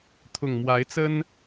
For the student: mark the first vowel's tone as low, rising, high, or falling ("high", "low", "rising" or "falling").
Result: low